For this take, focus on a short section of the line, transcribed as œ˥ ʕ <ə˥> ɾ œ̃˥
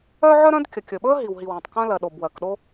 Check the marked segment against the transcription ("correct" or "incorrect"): incorrect